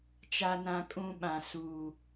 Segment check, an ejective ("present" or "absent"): present